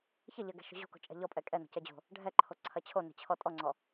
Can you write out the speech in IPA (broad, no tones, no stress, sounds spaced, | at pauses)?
ç ɐ ʎ ɐ ɡ ɛ̤ ʃ o̤ ʑ o̤ k o̤ t͡ʃʼ ɛ̤ ʎ ɔ pʼ ɛ kʼ ɛ n ɔ̤ c ɛ d͡ʑ o̤ | ɖʱ ɛ ǃʰ o ǀʰ ɐ t͡ɕʰ o n ɛ̤ t͡ɕʰ ɔ tʼ ɔ ŋ͡ǀ ɔ